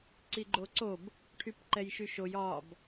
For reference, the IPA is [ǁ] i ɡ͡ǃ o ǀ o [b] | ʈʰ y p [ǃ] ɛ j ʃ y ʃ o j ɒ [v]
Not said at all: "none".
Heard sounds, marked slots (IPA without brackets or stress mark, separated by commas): ǀ, b, ǃ, b